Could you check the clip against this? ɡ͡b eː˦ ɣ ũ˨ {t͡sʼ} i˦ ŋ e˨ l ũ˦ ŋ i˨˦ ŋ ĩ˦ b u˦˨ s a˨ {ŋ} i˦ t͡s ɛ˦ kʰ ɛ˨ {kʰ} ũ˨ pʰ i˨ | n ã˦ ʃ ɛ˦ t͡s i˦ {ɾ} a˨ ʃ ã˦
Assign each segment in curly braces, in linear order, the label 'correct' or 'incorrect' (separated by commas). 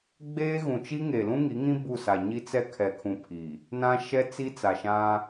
incorrect, incorrect, correct, incorrect